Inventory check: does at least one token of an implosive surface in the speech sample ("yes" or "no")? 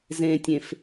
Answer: no